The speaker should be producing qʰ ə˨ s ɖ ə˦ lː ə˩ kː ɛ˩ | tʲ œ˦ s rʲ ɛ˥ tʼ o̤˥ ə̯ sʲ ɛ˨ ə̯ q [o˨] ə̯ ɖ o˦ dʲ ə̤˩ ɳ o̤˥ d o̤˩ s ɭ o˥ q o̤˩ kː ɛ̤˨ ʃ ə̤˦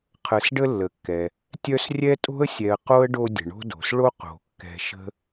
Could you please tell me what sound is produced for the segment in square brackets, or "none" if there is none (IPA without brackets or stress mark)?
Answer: o˥